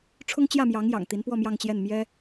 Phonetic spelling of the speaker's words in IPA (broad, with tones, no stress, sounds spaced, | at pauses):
ʈ͡ʂʰ ʊ˥ ŋ t͡ɕ j ä˥˩ m j ɑ˧˥ ŋ j ɑ̰˨˩ ŋ t̪ i˧˥ n p w ɔ˥˧ m j ɑ˥˧ ŋ t͡ɕ j ɛ˥˩ n m j ɛ˥